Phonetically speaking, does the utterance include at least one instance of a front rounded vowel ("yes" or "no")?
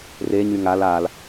yes